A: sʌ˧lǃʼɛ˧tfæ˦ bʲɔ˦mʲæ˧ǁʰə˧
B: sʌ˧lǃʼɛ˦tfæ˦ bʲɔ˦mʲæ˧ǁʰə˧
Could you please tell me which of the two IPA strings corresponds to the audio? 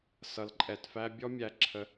A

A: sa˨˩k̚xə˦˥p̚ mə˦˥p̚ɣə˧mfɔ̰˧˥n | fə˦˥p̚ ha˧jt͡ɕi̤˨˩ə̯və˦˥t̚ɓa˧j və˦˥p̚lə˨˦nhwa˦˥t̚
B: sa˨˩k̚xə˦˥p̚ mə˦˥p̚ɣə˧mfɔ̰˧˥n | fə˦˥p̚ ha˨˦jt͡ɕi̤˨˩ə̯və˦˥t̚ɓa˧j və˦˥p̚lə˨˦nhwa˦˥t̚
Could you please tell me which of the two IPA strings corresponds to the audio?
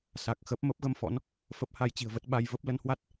A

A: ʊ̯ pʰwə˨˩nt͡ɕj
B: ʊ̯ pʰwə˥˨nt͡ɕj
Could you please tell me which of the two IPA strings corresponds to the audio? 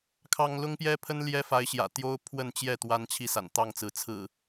B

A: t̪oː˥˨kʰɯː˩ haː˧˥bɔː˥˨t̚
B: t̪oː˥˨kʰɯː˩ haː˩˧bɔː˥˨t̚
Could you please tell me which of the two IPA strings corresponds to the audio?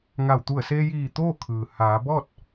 B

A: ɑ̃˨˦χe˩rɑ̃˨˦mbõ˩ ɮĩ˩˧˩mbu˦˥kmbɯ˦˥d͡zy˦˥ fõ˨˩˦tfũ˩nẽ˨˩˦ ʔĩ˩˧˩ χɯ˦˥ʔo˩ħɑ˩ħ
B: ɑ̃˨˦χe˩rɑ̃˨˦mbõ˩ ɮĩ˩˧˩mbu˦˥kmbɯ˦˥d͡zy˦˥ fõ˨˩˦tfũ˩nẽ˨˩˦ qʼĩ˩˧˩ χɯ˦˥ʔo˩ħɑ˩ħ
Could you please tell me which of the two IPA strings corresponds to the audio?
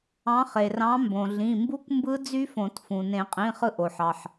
B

